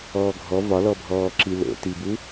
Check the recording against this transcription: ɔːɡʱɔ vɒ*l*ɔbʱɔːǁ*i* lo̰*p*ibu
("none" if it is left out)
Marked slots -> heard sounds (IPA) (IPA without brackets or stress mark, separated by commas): l, i, t